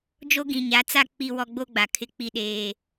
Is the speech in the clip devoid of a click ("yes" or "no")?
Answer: yes